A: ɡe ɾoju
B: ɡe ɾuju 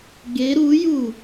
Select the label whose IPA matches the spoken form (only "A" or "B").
B